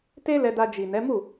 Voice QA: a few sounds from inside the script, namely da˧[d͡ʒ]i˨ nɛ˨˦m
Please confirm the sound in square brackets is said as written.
yes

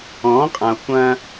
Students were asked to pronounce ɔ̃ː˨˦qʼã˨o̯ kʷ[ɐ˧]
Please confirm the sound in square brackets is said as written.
no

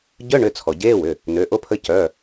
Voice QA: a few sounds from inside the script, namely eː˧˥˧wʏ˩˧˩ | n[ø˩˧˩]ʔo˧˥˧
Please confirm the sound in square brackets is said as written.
yes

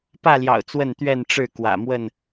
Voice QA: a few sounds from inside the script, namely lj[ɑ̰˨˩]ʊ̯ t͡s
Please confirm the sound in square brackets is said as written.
yes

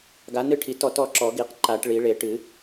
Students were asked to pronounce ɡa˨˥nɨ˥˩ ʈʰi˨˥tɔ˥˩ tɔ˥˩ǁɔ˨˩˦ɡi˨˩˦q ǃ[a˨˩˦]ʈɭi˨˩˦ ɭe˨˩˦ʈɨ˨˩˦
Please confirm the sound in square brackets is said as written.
yes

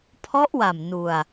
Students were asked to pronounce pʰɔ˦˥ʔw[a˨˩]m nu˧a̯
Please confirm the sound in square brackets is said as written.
yes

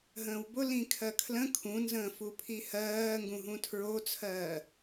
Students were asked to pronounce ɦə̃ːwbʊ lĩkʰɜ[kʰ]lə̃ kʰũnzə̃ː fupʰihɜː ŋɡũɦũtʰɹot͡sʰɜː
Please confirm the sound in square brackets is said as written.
yes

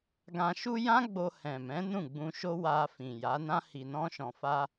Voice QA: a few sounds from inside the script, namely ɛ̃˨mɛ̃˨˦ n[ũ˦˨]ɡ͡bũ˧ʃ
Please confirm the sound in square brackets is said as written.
yes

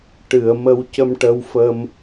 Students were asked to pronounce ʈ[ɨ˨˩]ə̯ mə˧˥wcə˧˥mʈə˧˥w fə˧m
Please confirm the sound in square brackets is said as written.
no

